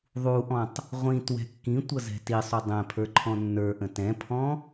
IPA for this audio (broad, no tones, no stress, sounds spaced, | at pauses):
ðˤ u ʔ ɔ̃ tˤ | ʁʷ ĩ t w ɛ̤ kː ĩ tʷ ʌ z ɛ̤ t i sˤ u dˤ ɛ̃ pʰ ə˞ ǃʰ ɔ̃ nː ə˞ ʔ ə̃ t ɛ̃ pʰ ɔ̃